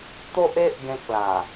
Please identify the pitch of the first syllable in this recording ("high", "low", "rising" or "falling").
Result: high